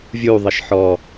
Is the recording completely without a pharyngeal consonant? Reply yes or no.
no